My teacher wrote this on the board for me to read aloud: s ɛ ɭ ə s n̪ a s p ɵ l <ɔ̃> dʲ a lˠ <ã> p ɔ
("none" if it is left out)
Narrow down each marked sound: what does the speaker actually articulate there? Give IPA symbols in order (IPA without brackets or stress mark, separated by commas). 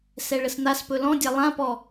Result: ɔ̃, ã